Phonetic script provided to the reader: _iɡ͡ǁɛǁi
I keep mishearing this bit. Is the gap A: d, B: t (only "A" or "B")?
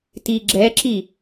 B